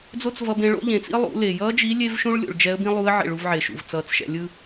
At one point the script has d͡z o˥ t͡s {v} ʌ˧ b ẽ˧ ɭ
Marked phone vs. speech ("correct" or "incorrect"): correct